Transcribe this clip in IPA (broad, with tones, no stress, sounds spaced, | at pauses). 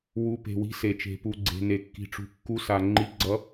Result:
w u˨˦ p e̤˩ w i̤˨˦ s e˩ t͡ʃ e̤˩ p u˩ ɡ͡ǀ e̤˩ n e˩ kː i̤˩ ʈ͡ʂ ṳ˩ kː u˨˦ s a˩ ŋ͡ǃ i˨˦ ɡ͡ǀ ʌ˨˦